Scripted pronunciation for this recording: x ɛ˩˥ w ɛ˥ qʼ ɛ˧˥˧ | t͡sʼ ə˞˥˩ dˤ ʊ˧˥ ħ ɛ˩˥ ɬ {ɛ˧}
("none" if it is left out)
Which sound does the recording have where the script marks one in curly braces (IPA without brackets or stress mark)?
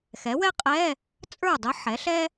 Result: ɛ˥